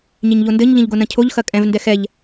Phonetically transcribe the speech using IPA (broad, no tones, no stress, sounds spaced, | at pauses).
ɲ e ɲ ʎ o n d ɘ ɲ ʎ ɐ̃ ʎ ɡ o n ɐ̃ cʰ o ʎ x ɐ kʼ ɛ̃ v n d ɛ x ɛ ʎ